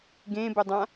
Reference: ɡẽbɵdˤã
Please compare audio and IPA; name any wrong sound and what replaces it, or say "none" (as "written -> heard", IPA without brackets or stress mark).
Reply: none